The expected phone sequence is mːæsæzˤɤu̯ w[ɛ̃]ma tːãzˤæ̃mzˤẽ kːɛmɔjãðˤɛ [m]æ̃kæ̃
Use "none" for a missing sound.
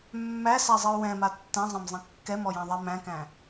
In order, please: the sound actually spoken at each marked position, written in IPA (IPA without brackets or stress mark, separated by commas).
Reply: ɛ̃, m